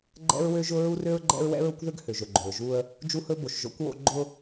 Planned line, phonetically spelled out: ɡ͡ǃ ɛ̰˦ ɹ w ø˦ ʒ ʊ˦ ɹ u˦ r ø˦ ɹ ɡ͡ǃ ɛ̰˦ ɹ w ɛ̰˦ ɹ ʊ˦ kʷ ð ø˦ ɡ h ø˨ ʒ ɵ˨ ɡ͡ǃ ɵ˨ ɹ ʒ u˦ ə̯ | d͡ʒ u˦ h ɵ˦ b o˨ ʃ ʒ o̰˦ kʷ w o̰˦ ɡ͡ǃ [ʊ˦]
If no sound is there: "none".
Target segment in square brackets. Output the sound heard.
ʊ˦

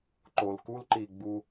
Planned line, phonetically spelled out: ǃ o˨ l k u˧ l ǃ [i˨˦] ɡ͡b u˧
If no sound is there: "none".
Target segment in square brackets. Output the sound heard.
i˨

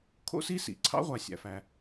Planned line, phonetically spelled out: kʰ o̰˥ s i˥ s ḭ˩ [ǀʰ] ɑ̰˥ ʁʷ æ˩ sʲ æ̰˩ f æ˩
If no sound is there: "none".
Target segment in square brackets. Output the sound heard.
ǀʰ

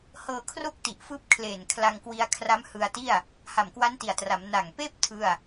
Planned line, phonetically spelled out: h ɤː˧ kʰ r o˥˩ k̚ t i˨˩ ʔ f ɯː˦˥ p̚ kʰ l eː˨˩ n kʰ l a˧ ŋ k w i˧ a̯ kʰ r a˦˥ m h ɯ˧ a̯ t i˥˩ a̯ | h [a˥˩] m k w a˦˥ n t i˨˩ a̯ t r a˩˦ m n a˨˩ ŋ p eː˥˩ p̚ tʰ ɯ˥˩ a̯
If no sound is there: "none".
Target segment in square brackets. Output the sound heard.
a˨˩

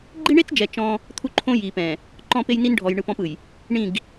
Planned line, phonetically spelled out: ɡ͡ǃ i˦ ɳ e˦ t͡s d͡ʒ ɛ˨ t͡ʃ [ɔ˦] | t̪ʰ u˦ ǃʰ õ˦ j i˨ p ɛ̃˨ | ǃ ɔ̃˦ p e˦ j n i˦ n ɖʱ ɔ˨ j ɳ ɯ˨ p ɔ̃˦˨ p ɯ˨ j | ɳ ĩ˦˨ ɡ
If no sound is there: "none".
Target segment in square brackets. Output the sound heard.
ɔ̃˦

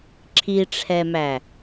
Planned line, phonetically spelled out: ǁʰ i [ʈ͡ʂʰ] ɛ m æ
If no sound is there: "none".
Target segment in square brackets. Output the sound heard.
ʈ͡ʂʰ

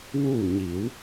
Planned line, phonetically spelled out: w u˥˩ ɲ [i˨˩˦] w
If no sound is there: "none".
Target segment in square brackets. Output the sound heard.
i˨˩˦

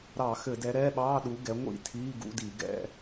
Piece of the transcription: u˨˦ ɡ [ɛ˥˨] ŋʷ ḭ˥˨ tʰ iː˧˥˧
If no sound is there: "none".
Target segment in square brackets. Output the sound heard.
ɛ˨˦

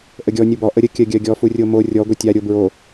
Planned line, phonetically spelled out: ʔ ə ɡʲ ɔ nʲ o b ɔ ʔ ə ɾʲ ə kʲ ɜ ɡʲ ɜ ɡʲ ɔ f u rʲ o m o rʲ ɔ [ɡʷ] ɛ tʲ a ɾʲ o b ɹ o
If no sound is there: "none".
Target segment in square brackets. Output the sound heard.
ɡʷ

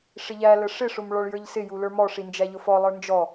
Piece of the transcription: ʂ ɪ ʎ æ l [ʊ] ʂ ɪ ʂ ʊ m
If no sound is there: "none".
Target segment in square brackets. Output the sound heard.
ə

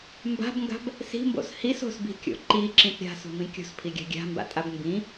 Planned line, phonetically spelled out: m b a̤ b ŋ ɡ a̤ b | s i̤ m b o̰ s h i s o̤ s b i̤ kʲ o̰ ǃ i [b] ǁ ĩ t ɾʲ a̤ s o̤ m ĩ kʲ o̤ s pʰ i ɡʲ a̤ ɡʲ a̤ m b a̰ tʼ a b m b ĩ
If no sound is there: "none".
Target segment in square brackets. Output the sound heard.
none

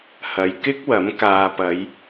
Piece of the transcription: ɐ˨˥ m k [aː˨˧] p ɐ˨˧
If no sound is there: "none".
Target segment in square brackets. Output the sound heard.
aː˨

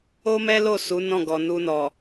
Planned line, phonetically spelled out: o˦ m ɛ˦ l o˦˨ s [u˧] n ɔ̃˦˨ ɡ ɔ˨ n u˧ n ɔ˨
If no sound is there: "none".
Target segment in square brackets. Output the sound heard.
u˨˦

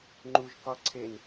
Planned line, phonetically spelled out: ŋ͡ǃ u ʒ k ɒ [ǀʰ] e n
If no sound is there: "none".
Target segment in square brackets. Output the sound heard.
ǀʰ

